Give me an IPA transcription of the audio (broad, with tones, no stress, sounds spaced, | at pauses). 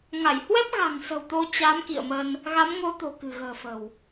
ŋ a˧˩ j h w ɛ˦˥ p̚ ɣ a̤˨˩ ŋ s ə̤˨˩ w t̪ o˧ t͡ɕ a˨˦ m k ḭ˧˨ ə̯ m ə˧ n | ɣ a˨˦ m ŋ o˨˦ t̪ o̤˨˩ k ɨ̤˨˩ ɣ ə̤ː˨˩ f ə̤˨˩ w